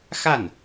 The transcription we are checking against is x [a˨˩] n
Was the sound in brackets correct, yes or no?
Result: no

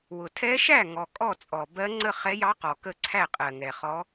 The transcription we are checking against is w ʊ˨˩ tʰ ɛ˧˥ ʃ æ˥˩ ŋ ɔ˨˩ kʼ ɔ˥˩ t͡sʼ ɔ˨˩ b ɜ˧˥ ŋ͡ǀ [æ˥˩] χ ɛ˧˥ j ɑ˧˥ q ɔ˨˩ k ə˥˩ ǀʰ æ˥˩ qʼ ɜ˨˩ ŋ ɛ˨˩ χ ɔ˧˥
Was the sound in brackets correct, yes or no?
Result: no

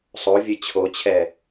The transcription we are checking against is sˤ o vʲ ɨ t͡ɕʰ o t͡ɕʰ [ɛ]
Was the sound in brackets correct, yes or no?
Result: yes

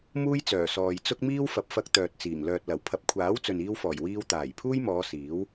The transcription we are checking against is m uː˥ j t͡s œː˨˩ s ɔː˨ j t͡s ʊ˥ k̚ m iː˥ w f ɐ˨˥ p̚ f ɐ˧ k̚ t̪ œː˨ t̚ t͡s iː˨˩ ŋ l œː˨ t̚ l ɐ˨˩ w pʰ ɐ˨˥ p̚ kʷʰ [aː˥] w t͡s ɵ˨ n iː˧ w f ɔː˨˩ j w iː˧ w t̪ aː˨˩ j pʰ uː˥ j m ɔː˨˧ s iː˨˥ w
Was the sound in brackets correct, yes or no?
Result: no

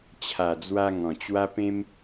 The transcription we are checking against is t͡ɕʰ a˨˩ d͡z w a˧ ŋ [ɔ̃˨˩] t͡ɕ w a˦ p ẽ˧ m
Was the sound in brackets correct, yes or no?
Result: yes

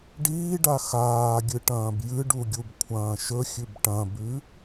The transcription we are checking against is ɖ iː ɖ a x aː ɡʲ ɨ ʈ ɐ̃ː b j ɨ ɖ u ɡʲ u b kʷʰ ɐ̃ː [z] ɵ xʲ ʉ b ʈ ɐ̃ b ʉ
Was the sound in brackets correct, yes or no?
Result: no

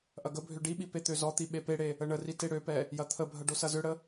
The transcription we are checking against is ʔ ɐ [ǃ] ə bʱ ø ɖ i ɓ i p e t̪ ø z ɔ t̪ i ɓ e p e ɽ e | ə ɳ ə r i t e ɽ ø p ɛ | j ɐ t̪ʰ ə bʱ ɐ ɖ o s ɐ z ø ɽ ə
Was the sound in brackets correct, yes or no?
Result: no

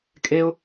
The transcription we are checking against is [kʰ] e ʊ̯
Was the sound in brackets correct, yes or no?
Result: no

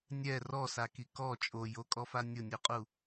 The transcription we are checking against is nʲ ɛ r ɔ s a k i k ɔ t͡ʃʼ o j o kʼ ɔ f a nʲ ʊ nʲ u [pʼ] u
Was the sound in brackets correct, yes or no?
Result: no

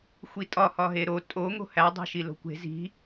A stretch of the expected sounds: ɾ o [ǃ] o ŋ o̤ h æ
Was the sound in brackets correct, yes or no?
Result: no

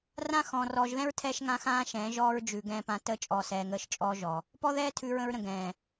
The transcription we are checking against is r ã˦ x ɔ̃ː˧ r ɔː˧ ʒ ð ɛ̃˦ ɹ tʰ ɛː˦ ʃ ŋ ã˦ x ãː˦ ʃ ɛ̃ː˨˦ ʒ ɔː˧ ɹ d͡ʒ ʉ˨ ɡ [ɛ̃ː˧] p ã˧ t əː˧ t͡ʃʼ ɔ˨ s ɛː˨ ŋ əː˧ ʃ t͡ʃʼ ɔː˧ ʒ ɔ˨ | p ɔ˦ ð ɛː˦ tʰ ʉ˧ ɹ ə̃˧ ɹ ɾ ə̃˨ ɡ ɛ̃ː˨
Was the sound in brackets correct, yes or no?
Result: yes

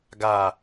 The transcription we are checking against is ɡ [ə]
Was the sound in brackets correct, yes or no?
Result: no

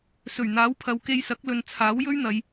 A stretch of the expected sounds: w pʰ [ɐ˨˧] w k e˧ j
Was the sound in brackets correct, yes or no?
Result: yes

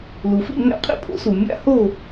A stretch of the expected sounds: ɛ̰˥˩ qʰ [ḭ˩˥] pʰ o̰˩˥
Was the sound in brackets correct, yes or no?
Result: no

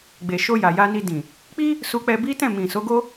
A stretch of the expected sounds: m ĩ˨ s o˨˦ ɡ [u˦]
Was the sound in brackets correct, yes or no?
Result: no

